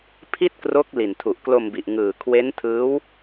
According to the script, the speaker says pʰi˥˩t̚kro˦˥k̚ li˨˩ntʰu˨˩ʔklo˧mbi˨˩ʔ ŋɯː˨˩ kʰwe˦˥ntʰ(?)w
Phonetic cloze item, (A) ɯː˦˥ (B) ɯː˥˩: A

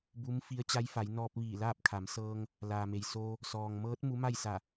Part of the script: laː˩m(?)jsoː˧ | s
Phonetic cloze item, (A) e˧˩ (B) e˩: B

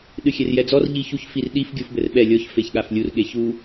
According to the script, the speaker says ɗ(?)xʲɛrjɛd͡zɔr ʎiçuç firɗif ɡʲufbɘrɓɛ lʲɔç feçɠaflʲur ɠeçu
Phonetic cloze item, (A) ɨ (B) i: A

